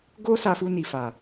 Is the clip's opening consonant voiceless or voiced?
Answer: voiced